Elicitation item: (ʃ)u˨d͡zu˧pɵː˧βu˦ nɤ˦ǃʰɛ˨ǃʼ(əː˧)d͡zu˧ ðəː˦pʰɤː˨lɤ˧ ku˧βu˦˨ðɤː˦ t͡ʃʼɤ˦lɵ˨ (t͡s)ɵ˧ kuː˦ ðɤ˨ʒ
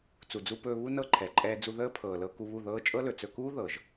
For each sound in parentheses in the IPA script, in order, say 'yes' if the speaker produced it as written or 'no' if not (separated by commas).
no, no, yes